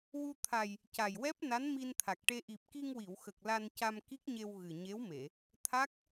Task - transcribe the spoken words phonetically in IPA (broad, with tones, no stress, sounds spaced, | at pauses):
w u˧ t̪ʰ a˨˩ j | c a˨˩ j w ɛ˦˥ p̚ n a˧˥ n m i˧ n t̪ʰ a˨˩ k̚ ʈ e˧ ʔ i˨˩ p̚ k i˧ ŋ w i˨˩˨ w x ə˨˩ k̚ l a˧ n c a˧ m k i˦˥ k̚ ɲ e˧ w ɣ ɨ˨˩ ɲ e˧˥ w m e˨˩˨ | t̪ʰ a˦˥ k̚